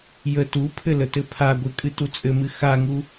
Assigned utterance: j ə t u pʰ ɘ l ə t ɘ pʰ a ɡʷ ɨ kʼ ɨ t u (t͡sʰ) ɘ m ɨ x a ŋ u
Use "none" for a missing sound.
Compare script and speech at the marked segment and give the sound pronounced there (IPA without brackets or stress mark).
t͡sʼ